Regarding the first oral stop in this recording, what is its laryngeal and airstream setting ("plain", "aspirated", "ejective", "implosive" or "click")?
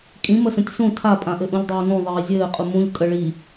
ejective